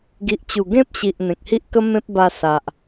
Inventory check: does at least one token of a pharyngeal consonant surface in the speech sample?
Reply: no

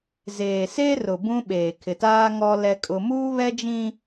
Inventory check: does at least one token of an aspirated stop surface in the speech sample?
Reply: yes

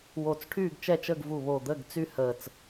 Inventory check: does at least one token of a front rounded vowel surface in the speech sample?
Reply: yes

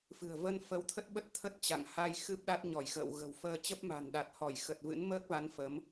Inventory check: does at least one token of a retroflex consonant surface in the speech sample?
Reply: no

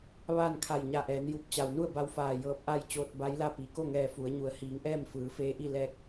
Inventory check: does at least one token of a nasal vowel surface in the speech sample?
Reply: no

